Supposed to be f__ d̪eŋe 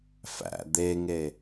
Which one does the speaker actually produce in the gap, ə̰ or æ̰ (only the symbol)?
æ̰